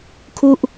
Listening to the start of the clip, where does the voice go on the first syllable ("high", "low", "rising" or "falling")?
falling